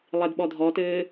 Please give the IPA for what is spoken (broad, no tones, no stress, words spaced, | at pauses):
lˠedɓɔdʱɔtɘː